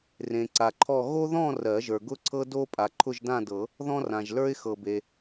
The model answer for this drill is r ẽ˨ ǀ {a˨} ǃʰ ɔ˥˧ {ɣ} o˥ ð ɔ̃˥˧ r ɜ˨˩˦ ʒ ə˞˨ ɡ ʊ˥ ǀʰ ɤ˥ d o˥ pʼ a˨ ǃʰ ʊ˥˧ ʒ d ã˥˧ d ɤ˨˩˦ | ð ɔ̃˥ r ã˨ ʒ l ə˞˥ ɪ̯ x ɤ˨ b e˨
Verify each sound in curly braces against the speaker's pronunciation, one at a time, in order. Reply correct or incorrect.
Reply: correct, correct

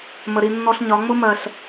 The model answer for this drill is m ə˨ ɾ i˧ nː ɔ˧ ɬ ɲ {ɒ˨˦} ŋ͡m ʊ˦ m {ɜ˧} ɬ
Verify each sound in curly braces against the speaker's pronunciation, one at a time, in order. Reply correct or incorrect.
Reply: correct, correct

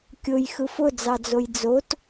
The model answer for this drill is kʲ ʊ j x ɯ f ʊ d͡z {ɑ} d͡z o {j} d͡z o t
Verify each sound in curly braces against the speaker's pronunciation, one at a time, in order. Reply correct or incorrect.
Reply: correct, correct

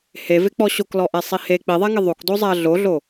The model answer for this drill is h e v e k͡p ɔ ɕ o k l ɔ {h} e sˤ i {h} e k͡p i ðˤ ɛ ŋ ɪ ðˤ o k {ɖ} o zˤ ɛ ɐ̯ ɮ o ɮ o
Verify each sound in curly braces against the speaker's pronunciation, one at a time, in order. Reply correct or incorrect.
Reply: incorrect: ʔ, correct, incorrect: d

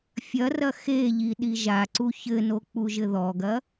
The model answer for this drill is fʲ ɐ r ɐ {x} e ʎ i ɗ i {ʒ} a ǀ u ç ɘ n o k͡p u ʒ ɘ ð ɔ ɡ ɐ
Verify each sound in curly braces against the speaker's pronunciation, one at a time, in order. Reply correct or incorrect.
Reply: correct, correct

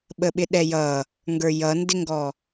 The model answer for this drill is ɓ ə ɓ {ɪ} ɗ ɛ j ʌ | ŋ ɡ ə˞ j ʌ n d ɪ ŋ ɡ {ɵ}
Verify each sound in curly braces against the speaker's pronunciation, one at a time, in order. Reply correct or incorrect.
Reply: correct, incorrect: ɔ

